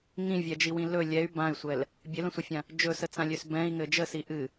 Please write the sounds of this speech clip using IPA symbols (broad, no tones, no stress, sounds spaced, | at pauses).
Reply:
ŋ ĩ vʲ ɛ d͡ʒ i w ĩ l ɵ lʲ ɛ y̯ b ã y̯ sʷ ɛ l | bʲ ɘ l ə̃ sʷ ə fʲ ã | d͡ʒ ɵ s ə t͡s ã lʲ ø s b ɛ̃ i̯ ŋ ɘ d͡ʒ ə s i ʔ ɨ